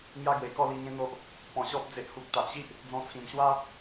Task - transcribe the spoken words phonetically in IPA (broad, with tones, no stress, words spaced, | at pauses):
ŋja˦ɡwe˨˩kɔ˥˧li˧ ŋẽ˦n̪o˦ʔ | pɔ̃˧ɕɔ˦p̚ d͡ze˨ʔhu˨k̚ t̪a˨ʔɕi˦ʔ | d͡zɔ̃˧t͡sʰĩ˨˩m ɕwa˦